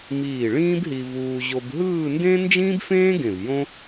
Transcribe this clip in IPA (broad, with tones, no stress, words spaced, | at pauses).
miː˧˩ ɭĩː˥bɦi˧ vuː˧ ʑo˧bɦɯː˥˧ndẽ˥ nd͡ʒĩː˥bfẽː˥ ɡẽ˧˩v jõ˥